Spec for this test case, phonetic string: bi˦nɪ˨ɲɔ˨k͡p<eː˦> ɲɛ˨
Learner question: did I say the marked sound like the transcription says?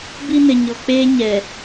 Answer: yes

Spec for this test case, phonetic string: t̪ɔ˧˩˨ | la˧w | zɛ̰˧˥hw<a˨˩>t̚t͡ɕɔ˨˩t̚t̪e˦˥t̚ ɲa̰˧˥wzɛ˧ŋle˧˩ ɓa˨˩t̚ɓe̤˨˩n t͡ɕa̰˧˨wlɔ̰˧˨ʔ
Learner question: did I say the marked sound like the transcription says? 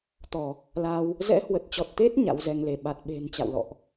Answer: no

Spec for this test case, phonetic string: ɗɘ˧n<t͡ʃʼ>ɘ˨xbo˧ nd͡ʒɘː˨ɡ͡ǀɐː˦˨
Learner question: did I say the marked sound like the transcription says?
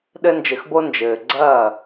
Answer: no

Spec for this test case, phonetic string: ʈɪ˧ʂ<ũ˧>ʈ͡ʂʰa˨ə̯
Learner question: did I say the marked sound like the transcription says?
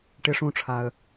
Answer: yes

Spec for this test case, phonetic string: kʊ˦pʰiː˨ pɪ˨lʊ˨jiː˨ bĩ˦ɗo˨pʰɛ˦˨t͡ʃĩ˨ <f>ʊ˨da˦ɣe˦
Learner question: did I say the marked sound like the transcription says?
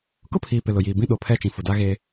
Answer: yes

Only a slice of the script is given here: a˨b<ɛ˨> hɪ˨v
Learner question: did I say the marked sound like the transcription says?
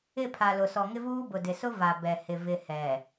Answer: yes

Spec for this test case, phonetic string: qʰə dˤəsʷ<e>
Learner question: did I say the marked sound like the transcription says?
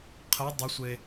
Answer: yes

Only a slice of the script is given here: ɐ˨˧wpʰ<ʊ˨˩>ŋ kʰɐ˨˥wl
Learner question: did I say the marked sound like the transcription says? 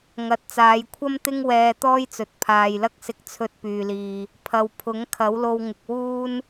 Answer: no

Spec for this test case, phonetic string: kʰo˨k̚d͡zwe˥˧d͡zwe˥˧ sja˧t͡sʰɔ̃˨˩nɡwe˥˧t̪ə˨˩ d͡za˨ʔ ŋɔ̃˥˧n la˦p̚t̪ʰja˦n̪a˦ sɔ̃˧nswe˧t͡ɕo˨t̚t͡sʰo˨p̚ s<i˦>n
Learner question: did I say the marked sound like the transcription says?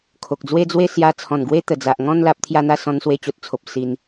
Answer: no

